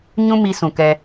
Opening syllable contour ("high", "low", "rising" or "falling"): high